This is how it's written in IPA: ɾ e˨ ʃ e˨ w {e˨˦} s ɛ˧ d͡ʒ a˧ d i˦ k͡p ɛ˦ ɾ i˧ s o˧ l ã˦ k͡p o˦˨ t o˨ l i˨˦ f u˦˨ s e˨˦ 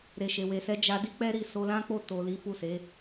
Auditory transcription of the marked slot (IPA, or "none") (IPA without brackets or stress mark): e˨